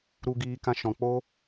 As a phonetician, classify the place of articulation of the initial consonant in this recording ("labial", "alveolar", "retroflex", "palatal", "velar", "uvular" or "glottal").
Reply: alveolar